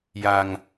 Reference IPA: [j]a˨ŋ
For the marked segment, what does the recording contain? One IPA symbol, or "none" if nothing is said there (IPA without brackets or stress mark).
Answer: j